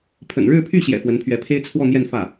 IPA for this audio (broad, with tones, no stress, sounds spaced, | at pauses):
pʰ ə̰˨˩ n ɻ ɻ̩˥˧ pʰ y˥˩ ɕ j ɛ̰˨˩ f w ə˧˥ n pʰ ɥ ɛ˧˥ pʰ e˥ ɪ̯ t͡sʰ w ɔ˥˧ n̪ j ɛ˥˧ n f ä˥˩